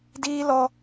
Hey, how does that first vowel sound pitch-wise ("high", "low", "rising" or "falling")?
high